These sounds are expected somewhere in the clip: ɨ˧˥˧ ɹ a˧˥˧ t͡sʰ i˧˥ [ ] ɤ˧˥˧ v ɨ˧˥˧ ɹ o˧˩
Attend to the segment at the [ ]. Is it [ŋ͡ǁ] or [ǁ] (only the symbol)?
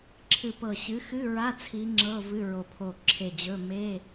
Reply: ŋ͡ǁ